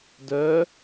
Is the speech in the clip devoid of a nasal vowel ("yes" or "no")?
yes